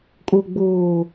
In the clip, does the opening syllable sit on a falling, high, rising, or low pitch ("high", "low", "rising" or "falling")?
low